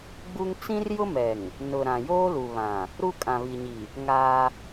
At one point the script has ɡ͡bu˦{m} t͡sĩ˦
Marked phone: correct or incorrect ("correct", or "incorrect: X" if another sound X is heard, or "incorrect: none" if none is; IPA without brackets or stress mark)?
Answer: incorrect: ŋ